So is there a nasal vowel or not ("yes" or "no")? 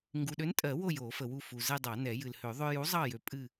no